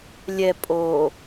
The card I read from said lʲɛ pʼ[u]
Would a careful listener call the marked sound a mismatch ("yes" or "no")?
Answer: yes